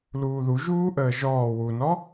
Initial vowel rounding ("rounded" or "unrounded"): rounded